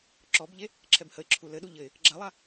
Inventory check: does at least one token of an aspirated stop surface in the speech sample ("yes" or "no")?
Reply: yes